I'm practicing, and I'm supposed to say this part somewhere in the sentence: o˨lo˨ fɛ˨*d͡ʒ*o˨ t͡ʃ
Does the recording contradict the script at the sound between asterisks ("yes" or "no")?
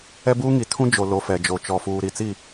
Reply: no